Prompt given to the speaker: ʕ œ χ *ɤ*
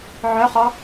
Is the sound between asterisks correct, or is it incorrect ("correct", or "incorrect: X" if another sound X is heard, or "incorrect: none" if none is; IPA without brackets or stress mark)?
incorrect: ɔ